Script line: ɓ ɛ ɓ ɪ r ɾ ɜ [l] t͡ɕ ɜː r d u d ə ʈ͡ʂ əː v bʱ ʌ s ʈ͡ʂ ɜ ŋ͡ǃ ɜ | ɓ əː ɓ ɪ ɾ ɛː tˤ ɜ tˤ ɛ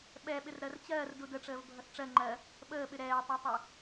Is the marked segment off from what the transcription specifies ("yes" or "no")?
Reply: yes